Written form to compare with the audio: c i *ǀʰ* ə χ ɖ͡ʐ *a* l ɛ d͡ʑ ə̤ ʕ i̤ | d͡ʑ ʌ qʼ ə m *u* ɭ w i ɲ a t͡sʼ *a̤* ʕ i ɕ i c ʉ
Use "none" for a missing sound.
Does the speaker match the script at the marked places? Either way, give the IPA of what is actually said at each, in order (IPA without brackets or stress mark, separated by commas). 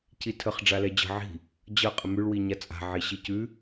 tʰ, a, ʉ, a̤